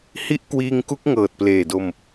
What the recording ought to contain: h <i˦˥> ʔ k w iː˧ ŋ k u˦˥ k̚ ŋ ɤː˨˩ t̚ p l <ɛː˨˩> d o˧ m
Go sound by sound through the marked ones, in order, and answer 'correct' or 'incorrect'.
correct, incorrect: eː˨˩

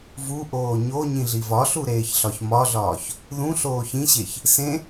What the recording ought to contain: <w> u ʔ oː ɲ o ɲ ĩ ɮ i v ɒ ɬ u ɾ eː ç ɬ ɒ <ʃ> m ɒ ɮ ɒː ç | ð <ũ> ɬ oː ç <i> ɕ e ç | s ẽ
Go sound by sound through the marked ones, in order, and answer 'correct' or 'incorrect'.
incorrect: v, incorrect: ç, correct, incorrect: ĩ

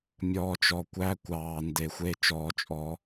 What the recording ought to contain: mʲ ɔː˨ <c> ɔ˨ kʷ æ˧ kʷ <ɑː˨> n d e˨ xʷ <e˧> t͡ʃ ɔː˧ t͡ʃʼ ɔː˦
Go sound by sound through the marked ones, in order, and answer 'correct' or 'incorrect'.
incorrect: t͡ʃ, correct, correct

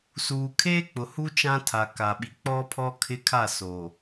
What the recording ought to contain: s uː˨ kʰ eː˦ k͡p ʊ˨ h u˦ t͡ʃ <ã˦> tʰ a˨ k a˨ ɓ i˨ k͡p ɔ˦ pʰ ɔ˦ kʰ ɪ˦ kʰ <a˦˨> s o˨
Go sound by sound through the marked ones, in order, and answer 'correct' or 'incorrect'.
correct, correct

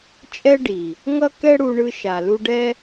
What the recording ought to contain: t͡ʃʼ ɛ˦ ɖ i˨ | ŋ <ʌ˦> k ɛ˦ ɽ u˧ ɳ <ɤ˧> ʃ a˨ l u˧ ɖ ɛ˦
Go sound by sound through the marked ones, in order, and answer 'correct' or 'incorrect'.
correct, incorrect: ɯ˧

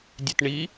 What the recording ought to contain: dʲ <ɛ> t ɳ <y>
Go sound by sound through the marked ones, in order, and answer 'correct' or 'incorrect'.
correct, incorrect: i

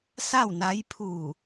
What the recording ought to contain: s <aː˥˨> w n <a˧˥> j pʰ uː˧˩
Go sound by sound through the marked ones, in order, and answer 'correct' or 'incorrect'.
incorrect: a˥˨, correct

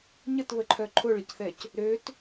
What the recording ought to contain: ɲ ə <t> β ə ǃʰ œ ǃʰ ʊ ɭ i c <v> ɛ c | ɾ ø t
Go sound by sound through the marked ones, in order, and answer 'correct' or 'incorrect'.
correct, incorrect: θ

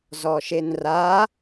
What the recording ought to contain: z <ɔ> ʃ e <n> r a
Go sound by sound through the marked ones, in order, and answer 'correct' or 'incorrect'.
correct, correct

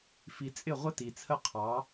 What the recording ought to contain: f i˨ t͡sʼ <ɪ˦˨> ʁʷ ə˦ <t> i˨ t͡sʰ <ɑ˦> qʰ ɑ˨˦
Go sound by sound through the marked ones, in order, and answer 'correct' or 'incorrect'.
correct, correct, incorrect: ə˦

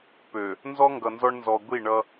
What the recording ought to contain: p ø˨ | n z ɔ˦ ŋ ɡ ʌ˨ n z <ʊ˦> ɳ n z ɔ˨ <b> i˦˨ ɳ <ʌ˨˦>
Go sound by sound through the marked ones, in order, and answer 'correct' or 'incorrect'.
incorrect: ɔ˦, incorrect: ɡʷ, incorrect: ʌ˦

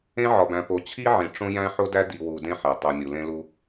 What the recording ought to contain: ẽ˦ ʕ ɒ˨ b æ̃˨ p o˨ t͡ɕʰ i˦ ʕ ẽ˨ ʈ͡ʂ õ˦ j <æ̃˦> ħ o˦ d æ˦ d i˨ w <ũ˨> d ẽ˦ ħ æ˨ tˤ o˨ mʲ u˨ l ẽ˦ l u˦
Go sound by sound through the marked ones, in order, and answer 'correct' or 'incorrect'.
correct, incorrect: u˨

